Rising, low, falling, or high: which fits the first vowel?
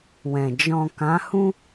low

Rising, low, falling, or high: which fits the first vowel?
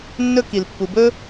high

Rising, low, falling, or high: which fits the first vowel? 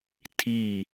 falling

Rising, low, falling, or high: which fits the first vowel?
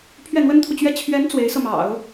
falling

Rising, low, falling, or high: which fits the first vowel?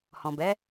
low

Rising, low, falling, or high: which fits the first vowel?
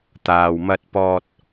low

